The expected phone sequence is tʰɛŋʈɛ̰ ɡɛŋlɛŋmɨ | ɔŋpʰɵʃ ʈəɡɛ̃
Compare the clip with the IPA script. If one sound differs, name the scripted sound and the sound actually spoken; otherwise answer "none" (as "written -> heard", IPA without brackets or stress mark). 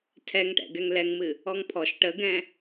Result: ɵ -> ɔ